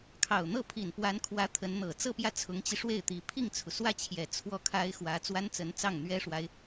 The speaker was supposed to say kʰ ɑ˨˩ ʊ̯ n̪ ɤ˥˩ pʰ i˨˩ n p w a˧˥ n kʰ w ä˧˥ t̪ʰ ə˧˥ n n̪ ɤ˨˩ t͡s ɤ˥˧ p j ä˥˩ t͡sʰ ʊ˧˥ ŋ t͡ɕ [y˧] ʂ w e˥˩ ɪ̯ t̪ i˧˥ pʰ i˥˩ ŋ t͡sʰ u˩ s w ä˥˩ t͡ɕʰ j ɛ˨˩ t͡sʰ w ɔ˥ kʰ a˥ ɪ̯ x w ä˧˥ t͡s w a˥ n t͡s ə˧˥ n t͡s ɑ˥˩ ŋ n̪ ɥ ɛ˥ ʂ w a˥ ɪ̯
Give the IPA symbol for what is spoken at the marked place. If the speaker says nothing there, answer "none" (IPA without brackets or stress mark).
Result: i˧